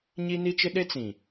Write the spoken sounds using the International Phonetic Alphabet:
ɲi˦ni˦t͡ʃɪ˦ ɗe˦t͡sĩ˨

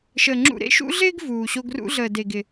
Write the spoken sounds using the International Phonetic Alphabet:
ʃəː˨ŋ͡ǁṵ˦ ɾḛ˥ʃṵ˥ɮɪː˥ɡ vuː˨ɕo˦ɡrṵ˥ ɮəː˨de˨ɡɪ˨

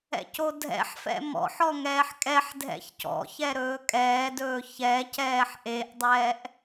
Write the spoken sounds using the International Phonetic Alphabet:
ɛ̰codʱɛ̰ħfɛ̰ mɔ̰ħɔ ŋɛːħkʼɛħdʱɛ̰ç cɔ̰çɛ ɾɵːkʼɛːdɵː çɛ cɛːħʔeʔdˤɛːʔ

